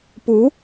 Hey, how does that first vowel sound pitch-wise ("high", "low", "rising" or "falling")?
rising